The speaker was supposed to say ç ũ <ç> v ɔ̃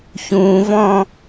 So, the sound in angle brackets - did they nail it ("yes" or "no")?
no